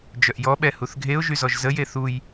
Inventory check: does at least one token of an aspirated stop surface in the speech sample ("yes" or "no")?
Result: no